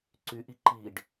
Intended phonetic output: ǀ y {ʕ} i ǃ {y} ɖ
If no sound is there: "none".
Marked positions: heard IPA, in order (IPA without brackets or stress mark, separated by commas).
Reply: ʔ, i